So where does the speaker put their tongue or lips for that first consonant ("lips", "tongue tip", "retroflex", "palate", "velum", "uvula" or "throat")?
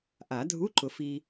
throat